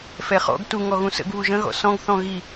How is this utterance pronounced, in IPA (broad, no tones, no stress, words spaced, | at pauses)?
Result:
fɛχɔ̰ɡ tu ŋɔɣũsə̰ɡ βuʒə̃ɣɔ̰ sɔ̃ɡθɔ̃ ɣi